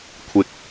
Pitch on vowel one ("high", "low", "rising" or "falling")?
low